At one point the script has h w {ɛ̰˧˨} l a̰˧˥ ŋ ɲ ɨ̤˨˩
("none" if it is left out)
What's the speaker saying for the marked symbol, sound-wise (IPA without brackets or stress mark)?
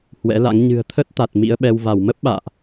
ɛ̰˧˥